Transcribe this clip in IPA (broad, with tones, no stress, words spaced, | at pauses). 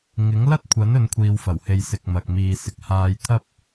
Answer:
ŋɪ˨˥ŋlɐ˥t̚kʷʰɐ˨˥n ɵ˨˧nkʷʰiː˨wfɐ˨˩whe˨j sɪ˨k̚mɐ˨k̚ miː˨sɪ˨k̚haː˧jt̪ʰɐ˥p̚